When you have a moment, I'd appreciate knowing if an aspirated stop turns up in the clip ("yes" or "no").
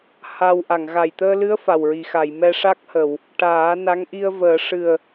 no